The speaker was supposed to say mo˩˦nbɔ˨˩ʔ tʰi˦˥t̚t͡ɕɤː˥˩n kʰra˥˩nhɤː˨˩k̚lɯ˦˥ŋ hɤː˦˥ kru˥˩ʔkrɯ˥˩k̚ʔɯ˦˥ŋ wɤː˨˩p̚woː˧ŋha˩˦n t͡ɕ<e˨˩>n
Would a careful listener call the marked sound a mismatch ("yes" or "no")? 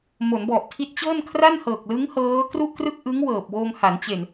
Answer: no